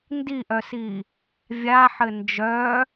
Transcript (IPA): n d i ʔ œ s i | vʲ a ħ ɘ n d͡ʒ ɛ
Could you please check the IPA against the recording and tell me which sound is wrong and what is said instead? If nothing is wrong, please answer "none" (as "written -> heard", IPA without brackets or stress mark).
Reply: ɛ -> œ